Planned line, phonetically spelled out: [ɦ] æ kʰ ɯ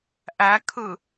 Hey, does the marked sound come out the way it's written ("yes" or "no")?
no